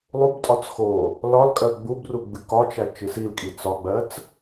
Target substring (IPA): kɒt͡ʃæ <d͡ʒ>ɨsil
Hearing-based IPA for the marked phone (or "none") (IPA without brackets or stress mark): t͡ʃ